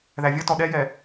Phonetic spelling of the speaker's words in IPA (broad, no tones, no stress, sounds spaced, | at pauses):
ð æ vʲ ʌ t ɔ ɗ ɛ j ɛ